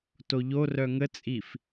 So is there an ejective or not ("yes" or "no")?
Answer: yes